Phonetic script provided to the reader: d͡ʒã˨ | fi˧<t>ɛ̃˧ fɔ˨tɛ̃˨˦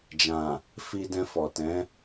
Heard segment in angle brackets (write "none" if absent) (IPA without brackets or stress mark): d